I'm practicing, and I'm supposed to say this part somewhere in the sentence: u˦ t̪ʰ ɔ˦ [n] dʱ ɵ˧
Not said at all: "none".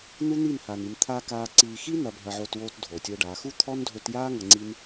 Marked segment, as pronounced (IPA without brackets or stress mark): n